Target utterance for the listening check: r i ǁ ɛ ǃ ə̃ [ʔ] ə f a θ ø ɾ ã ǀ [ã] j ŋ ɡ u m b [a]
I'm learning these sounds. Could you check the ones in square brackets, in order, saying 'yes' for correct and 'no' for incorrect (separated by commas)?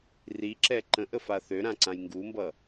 yes, yes, no